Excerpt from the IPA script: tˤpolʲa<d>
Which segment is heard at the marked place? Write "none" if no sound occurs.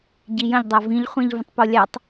tˤ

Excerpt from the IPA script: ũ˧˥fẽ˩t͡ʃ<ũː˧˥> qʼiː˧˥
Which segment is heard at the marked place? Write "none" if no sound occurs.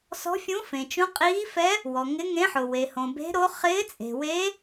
ũ˧˥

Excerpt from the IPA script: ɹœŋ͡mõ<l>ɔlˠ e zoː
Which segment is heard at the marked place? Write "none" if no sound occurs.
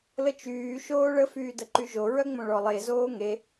ɭ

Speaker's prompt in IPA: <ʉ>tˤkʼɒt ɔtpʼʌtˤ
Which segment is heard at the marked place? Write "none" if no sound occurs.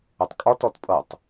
ʊ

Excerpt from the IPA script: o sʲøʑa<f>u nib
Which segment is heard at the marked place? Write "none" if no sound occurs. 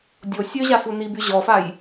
f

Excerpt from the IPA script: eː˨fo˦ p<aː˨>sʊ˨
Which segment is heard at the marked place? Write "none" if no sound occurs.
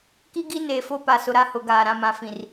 a˨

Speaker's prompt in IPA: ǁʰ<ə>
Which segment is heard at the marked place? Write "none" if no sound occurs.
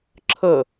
ə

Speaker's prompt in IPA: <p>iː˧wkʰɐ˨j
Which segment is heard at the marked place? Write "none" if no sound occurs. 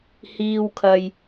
h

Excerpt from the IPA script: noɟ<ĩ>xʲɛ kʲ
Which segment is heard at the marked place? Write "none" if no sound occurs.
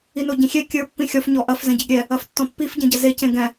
ĩ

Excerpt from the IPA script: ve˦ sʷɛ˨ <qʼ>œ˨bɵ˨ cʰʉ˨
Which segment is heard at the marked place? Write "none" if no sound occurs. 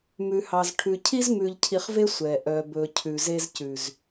ʔ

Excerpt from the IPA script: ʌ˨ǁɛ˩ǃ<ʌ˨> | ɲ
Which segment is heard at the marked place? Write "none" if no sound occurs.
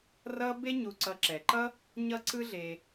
ʌ˥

